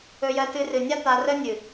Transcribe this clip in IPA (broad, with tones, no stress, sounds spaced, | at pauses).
ɵ˧ j ɜ˧ t ɨ˧ r ɨ˨ nʲ a˦ t̪ a˧ r ə˦ nʲ ɨ˨